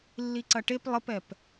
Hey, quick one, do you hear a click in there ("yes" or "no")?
yes